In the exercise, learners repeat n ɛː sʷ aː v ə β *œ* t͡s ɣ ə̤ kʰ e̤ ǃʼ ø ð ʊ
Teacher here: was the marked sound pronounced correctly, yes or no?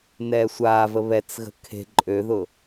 no